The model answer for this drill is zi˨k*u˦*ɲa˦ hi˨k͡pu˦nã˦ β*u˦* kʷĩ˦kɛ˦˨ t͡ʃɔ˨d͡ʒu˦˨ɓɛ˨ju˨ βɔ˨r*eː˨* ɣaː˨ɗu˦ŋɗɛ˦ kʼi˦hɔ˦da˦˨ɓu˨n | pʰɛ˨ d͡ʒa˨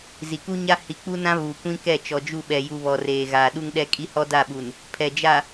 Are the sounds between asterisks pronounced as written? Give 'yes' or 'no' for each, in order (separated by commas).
yes, no, yes